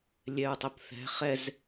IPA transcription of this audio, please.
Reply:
lʲ ɛ ɹ tˤ ʊ p θ ɛ̤ χ ɛ z

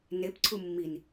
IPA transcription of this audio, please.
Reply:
n e p ǀʰ u mː i n

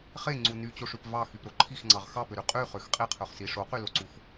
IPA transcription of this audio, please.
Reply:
χ e ŋ͡ǀ u n y t͡ɕ o ʂ ʉ p v ɑ x y p ɾ o ǃʰ i x ŋ͡ǀ ɑ ʁ x ɑ p ø ɾ y qʼ y χ ø x qʼ i qʰ ø χ s i ʂ o q y l o ǀ u x

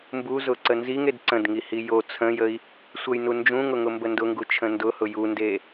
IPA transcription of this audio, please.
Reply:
m b u z ʊ ǀ ə n z i ŋ e d ǀ ə̃ d ŋ i h i j o t͡sʰ ə̃ j ə i̯ | sʷ ə j n u n d͡ʒ ũ ŋ ʊ ŋ ʊ m b ə n d ʊ ŋ ɡ u t͡ʃʰ ə̃ n d ʊ h ʊ j u n d e

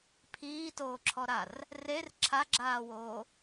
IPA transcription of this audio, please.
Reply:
pʰ iː t oː ǁʰ ɔ ɾ a r | r e r ǁʰ a ɡ͡ǁ aː w oː

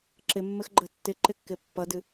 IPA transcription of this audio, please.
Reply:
ǁ ɪ mː ɘ x ɡ͡ǃ ə tː ɪ ǃ ɪ kː ɪ pː ʌ d ɨ

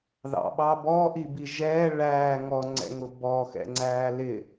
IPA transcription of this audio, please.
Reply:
ð ɑ̰ ɓ ɑ b ɔː ʔ i b i ʒ ɛː ɭ æː ŋ ɔ ŋ͡ǀ ɛ̰ ŋ ʊ b ɔ x ɛ̰ ŋ͡ǀ æː l ɪ

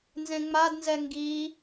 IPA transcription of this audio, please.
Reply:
n z ẽ ŋ͡m a d n z ɛ ŋ ɡ i

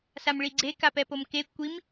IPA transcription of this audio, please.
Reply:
s a m ɭ i ɡ͡ǀ e k a p ɛ p o m k e kʷ i m

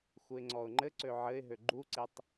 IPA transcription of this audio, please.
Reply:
x u ɪ̯ ŋ͡ǀ ɔ ʊ̯ ŋ͡ǃ ɘ ǀ ø ʕ ɘ ɪ̯ ɦ ø ɡ͡ǃ u ǀ e tˤ

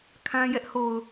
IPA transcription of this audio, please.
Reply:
kʰ ã˦ j ɛ˦ ʔ h o˨ ʊ̯

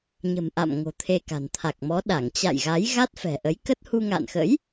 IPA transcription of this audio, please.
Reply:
ɲ ə̤˨˩ m ʔ a̰˧˨ m ŋ o̤˨˩ t̪ʰ e˧ k a̤˨˩ n t̪ʰ a˨˩ k̚ m ɔ˨˦ ɗ a˧˩ ŋ t͡ɕ a̰˧˨ j ɣ a˨˦ j ɣ a˦˥ t̚ f ɛ̤˨˩ ʔ ə˨˦ j k ə˦˥ t̚ h u˧ ŋ a̰ː˧˨ n x ə̰˧˥ j

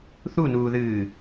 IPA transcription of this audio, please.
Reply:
θ u n uː ð ɨː

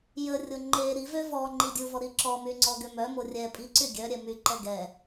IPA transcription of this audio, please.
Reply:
j ə rʲ o ŋ͡ǃ e ɾ i v ø v ɔ ŋ͡ǃ i dʲ u v ɔ ɾ i ǁ ɔ m y ŋ͡ǀ ɔ ɡ ø m œ m o rʲ ɛ pʼ i ǀ y ɡʲ œ ɾʲ ɛ m y ǃ ɛ ɡ ɛ

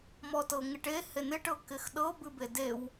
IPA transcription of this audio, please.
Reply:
m ɔ t ɤ ŋ ɪ ʈ e h e n ɪ ʈ ɤ k ɪ x ɗ ɤ b ɨ b e d e w

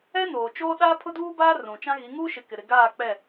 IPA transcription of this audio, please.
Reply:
ɛ˦ n oː˨ t͡ʃ oː˦ ɗ aː˦ pʰ ʊ˦ d uː˦ b aː˦ r ũ˨ t͡ʃ ã˦ ɣ i˨˦ ŋ uː˦ ʃ ɪ˨ k ɪ˨ ɾ ɪ˨ ɡ aː˦˨ k͡p ɛ˦˨

